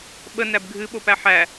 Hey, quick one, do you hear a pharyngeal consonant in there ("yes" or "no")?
yes